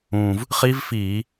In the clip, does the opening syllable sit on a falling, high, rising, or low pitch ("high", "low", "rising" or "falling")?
low